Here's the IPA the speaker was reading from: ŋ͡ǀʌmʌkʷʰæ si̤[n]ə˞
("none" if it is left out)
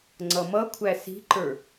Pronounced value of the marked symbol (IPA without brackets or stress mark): ǃ